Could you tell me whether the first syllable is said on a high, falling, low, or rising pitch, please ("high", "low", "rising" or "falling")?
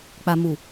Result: low